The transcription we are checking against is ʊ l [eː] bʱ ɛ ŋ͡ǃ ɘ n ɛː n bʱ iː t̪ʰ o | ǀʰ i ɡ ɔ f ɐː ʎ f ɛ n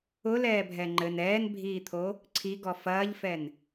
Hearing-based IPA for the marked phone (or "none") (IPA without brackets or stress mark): ɛː